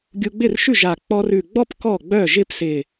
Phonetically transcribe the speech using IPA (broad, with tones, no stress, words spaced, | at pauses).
ɡʲu˧ɡ͡bɪ˥˩rʃʉ˥˩ʒa˨˩ k͡pɔ˧rʉ˨˩ɡ͡bɔ˥˧p kɔ˥˩ɡ͡bœ˥˩ʒɪ˥˧p sɪ˨˩